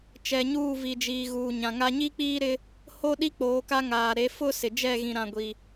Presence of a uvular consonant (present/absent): absent